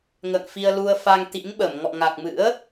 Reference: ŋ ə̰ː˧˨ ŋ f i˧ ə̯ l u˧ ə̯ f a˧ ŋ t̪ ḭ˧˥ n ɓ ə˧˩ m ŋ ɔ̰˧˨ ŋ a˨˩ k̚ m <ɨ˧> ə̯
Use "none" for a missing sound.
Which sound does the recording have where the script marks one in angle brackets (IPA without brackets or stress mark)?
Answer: ɨ̰˧˥